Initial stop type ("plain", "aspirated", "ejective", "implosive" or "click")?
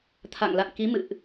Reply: aspirated